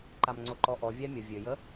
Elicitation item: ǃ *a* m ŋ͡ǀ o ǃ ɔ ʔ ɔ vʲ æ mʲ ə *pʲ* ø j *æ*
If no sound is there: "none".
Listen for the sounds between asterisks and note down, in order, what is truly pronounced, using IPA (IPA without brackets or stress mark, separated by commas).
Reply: a, vʲ, ə